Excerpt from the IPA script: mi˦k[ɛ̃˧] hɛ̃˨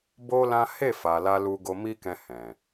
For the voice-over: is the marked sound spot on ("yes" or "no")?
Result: yes